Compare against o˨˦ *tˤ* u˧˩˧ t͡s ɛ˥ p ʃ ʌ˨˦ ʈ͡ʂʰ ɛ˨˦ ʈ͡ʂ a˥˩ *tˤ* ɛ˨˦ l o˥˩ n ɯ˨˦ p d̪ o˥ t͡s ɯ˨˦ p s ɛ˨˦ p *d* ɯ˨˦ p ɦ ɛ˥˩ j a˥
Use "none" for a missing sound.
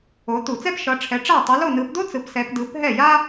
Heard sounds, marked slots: t̪, tˤ, d

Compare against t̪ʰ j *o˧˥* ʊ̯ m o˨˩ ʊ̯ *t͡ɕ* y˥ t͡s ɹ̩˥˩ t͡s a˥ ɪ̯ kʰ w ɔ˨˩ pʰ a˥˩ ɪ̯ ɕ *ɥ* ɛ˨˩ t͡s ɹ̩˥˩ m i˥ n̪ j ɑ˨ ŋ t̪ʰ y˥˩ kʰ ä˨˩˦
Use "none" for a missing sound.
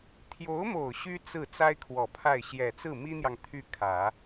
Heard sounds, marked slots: o˧˥, ɕ, j

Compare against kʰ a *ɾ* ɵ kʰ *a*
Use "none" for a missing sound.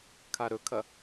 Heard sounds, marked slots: ɾ, ɐ

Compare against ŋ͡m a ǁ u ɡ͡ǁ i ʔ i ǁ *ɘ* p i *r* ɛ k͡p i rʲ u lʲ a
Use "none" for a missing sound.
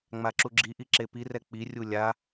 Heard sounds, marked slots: e, r

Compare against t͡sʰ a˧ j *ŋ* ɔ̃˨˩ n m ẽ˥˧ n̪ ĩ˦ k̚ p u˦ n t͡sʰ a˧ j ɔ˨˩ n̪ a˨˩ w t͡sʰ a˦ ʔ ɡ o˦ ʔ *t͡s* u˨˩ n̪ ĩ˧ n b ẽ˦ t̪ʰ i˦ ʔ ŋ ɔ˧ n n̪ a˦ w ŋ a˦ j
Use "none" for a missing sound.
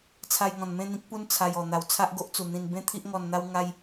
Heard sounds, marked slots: ŋ, t͡s

